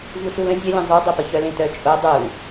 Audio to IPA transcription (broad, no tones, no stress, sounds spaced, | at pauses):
v u ɬ u l ə̃ zʲ œ lʲ ẽ zˤ u dˤ o p ə ç œ l ẽ t œ t͡ʃʼ o dˤ u